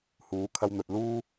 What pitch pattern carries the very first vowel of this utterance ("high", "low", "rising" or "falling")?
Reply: rising